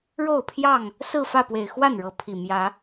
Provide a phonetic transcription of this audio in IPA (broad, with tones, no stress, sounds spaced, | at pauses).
ɻ o˥˨ ʊ̯ pʰ j ɑ˥˨ ŋ | s ɹ̩˥˨ f ä˥˨ p w e˨˩ ɪ̯ x w a˥˨ n ɻ ɤ˨˦ pʰ i˨˩ m j ä˨˦